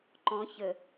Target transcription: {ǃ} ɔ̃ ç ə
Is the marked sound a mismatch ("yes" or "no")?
no